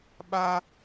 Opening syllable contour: high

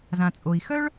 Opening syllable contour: low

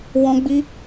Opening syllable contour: high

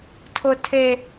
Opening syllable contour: low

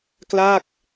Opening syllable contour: falling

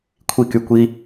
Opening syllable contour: falling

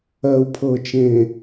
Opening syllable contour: low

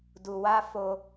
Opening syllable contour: low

